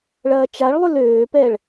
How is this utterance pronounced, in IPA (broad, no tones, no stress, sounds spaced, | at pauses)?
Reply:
ɭ ɐː t͡ʃ a ɭ lˠ ʏ l øː p ɛː ɭ